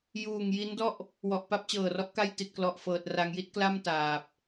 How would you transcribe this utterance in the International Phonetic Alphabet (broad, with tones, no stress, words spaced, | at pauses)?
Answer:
juː˨˩ŋ ji˦˥ndɔ˥˩ʔ | wɔ˨˩ʔpa˦˥p̚t͡ɕɤː˨˩rɔ˦˥ʔ ka˥˩jti˨˩t̚klɔ˨˩ʔfɤː˨˩t̚ ra˧ŋji˥˩t̚kla˥˩m taː˨˩p̚